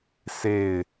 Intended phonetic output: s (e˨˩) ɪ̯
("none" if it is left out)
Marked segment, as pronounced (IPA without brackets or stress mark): e˥˨